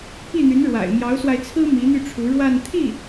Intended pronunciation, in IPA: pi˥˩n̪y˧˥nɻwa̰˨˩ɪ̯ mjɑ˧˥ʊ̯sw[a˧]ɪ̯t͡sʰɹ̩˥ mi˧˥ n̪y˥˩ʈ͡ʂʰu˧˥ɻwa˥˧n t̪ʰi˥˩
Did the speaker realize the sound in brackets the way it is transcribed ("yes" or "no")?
yes